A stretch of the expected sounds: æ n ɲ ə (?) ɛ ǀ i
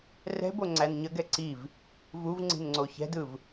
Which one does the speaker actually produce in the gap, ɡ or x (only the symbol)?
ɡ